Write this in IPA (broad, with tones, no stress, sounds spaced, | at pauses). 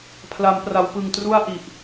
pʰ l a˩˦ m p r a˩˦ w p ɯ˨˩ ŋ t r u˥˩ a̯ ʔ i˨˩ ʔ